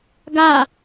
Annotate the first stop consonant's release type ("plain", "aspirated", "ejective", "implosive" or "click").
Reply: plain